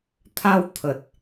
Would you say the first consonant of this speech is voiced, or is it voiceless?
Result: voiceless